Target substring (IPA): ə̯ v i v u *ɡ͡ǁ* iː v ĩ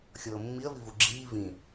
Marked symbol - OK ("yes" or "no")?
yes